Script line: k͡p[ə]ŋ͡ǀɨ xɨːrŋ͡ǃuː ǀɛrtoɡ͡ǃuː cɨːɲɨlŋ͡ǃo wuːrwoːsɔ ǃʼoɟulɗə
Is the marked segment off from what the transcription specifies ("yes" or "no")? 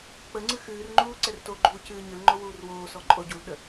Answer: no